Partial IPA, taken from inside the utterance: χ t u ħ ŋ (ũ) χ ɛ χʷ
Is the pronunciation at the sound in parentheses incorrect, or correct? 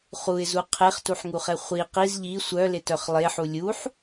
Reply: incorrect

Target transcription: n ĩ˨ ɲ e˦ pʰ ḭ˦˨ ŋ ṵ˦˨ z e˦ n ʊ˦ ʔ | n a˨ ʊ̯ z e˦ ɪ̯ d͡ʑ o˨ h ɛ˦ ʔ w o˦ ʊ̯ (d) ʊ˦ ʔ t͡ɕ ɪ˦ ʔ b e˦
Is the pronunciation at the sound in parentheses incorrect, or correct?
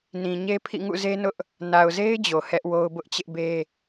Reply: incorrect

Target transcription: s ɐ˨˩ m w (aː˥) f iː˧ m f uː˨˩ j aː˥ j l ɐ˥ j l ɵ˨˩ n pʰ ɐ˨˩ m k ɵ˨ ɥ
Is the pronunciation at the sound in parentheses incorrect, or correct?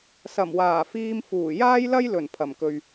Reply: incorrect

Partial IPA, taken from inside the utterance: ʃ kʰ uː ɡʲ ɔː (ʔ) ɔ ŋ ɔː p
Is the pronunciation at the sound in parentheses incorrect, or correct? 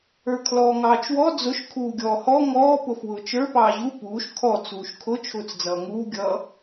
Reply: incorrect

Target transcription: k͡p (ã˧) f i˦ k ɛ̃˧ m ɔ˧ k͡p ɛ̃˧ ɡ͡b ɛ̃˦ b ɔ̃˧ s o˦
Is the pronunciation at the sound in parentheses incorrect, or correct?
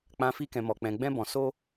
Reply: correct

